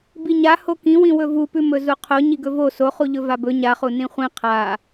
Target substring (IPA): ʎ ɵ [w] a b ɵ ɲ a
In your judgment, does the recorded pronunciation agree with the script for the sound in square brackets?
no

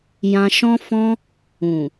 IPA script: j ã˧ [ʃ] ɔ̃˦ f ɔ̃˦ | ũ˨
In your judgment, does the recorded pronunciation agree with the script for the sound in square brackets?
yes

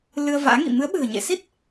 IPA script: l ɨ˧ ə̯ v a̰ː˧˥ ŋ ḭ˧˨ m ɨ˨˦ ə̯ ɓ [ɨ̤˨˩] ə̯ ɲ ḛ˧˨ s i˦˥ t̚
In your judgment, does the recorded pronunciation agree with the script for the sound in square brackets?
yes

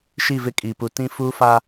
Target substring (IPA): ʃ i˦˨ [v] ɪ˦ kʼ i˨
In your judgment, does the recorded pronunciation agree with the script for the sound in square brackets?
yes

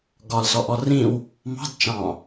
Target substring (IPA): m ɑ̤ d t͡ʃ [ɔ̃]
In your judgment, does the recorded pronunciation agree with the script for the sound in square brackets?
no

